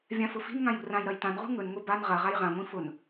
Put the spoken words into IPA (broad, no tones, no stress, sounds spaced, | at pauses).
vʲ ã f ʊ f i̤ n ŋ ã j ṳ r ã j ɾ ɐ j t ã n ʁ ṳ ŋ ɵ n ŋʷ i b a n ʁ ɐ ʁ a j ʁ ã ŋʷ ĩ f ʊ n